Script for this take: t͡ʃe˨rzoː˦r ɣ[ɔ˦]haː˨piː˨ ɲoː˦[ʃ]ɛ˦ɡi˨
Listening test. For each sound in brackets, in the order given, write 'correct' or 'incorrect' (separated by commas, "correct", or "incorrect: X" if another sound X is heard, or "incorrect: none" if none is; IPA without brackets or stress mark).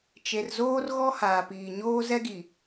correct, incorrect: z